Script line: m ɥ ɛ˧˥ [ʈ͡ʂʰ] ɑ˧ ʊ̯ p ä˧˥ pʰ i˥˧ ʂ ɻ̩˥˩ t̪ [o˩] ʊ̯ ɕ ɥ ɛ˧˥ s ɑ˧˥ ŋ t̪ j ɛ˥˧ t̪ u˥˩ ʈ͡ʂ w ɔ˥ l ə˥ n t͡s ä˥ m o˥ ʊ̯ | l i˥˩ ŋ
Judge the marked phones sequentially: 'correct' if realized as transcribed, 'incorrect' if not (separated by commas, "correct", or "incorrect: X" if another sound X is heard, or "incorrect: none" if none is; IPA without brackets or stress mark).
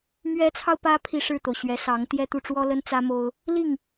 incorrect: t͡sʰ, correct